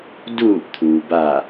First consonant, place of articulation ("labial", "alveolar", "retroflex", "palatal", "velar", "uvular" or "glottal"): alveolar